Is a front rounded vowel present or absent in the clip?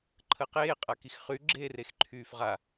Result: present